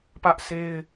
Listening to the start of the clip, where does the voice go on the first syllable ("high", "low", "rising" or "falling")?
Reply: high